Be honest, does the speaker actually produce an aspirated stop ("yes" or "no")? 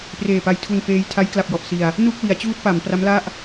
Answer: yes